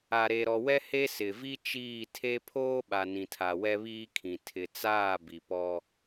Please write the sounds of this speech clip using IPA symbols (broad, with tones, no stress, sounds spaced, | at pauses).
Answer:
a˨ ɾ e˨ ɾ ɔ˨ w ɛ˦ h e˦ s ɪ˨ v i˦ t͡ʃ iː˦˨ tʰ e˦ pʰ oː˦ ɓ a˨ n ĩ˨ tʰ a˨ w ɛ˦ β iː˦ kʰ ĩ˨ tʰ ɪ˨ t͡s aː˦˨ b i˨ p ɔ˦